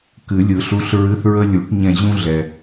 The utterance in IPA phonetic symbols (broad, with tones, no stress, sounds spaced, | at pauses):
k ɨ˨˩˦ lʲ ɯ˨˩˦ ɬ u˧˥˧ ɬ ɹ ɨ˧˥˧ θ ɹ ə˥ lʲ u˨˩˦ ʈ ɲ ɛ̃˦˨ ʑ ũ˥ ɮ ɛ˨